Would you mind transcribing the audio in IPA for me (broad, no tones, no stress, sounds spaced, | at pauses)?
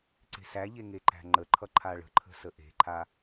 ǀ e̤ s æ ʎ e ŋ e ǃ æ̤ ŋ͡ǃ ə ǃʰ ʌ ǃʰ a ɭ ə̤ ǃʰ ə̤ s ə ʔ e̤ ǃʰ a